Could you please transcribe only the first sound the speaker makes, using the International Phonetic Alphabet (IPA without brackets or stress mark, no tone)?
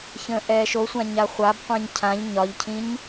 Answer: ç